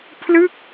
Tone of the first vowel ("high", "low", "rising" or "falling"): falling